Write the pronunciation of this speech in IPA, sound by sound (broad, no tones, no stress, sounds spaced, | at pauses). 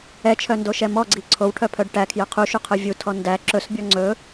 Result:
ɛ t͡ʃʰ œ n d o ʃ ɛ m ɔ ɡ͡ǀ i ǀʰ o w ʈʰ œ pʰ œ ɖ ʈ æ kʰ j œ qʰ u ʃ u qʰ œ vʲ u tʰ ɔ n d æ ǁ ɵ s bʲ ɔ ŋ͡ǀ ɵ